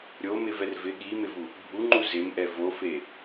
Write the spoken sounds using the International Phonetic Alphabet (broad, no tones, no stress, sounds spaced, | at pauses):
ɾʲ o m ɪ v ɛ r v ɪ ɠ i m ɪ v u | bʱ u ŋ͡ǃ u z ɪ m ʔ ɛ v o f e